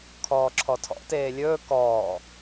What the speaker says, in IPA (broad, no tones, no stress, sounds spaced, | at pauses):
kʰ ɔː ǁʰ ɔ tʰ ɔ̰ t eː lʲ ɵː k ɔː